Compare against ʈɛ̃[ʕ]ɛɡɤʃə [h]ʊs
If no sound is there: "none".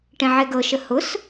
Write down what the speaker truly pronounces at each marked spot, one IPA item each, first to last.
ʕ, h

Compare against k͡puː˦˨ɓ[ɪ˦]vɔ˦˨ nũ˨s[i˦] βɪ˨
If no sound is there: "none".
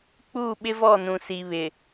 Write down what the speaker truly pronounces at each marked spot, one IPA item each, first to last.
ɪ˦, i˨

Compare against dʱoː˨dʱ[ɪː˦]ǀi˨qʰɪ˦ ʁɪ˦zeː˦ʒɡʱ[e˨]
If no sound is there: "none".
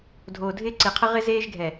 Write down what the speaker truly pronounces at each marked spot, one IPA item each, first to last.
ɪː˦, ɛ˨

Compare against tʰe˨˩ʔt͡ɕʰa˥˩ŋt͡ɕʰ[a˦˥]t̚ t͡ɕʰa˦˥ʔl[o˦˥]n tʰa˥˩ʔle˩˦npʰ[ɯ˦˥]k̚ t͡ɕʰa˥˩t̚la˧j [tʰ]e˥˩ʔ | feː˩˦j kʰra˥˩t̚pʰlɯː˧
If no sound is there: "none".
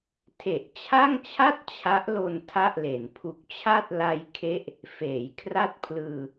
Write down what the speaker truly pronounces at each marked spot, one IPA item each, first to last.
a˥˩, o˧, u˦˥, kʰ

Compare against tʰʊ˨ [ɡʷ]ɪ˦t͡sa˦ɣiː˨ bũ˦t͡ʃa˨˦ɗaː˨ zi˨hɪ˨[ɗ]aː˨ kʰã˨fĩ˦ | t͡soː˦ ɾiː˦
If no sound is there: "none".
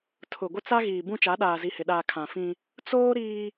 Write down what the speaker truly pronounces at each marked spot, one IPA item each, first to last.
ɡʷ, ɗ

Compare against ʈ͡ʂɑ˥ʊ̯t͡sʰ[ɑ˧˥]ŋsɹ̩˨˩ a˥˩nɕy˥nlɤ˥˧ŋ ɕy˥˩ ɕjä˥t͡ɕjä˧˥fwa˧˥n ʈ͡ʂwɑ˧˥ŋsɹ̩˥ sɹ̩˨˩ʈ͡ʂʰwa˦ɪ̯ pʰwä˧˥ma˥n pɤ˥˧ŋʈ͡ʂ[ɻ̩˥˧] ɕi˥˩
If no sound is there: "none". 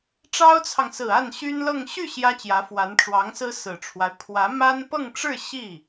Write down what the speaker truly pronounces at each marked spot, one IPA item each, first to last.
ɑ˨, ɻ̩˥˧

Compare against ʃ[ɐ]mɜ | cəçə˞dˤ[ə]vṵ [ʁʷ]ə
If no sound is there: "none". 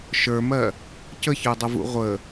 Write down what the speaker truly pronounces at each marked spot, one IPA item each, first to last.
ə˞, ə, ʁʷ

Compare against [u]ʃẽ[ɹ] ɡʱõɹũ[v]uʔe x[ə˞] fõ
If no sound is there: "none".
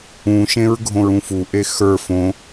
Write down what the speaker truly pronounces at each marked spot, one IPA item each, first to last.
ũ, ɹ, f, ə˞

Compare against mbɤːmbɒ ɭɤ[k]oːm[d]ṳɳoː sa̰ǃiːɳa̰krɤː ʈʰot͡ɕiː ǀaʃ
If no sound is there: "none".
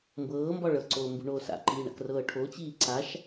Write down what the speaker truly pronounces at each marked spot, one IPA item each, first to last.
ǀ, b

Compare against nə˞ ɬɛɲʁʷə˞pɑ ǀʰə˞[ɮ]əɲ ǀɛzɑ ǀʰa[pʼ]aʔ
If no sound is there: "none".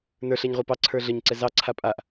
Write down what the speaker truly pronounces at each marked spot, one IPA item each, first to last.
ɮ, pʼ

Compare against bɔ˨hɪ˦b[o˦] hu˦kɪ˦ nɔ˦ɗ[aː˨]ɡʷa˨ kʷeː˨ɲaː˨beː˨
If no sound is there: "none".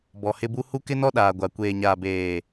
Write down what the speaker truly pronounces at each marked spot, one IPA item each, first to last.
u˦, aː˨

